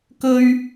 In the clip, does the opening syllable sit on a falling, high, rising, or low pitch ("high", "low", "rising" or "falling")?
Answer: high